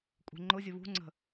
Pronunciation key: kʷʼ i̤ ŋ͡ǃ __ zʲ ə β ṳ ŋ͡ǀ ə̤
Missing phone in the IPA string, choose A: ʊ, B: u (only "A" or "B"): A